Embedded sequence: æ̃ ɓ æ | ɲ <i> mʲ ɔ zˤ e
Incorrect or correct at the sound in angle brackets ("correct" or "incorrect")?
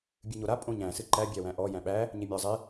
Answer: incorrect